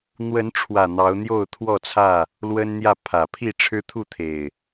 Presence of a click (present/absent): absent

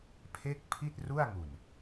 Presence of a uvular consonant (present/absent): absent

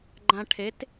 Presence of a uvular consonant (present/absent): absent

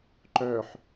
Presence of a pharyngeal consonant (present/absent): present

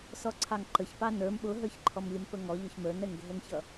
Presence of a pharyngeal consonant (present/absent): absent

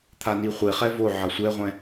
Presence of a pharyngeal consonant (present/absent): present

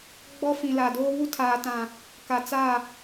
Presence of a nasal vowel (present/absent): present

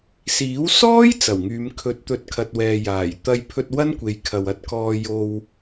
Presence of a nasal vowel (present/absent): absent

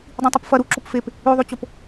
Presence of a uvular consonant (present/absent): absent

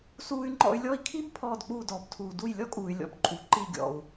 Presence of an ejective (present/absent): present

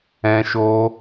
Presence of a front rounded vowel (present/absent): absent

